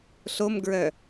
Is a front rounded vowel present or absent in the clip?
present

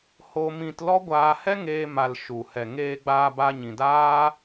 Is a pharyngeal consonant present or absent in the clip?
absent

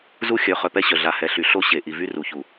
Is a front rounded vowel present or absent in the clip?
present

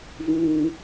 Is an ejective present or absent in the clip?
absent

